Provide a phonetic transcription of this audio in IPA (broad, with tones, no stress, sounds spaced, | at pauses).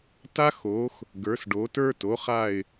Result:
t a˦ x o˩˧ x | ɡ ə˞˩˧ s ɖ o˩˧ t ə˞˦ t o˩˧ χ a˧˩ ɪ̯